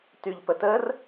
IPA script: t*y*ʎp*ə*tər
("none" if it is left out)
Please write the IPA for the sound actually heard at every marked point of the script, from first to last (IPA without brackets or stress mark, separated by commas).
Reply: y, ə